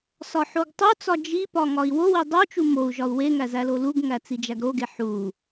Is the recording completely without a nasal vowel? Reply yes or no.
yes